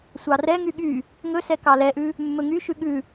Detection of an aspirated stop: absent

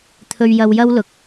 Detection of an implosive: absent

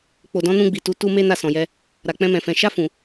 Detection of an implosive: absent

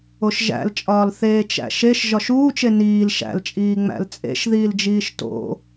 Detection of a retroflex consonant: absent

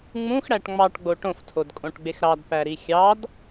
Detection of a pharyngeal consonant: absent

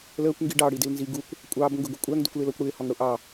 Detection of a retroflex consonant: present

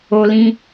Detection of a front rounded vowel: absent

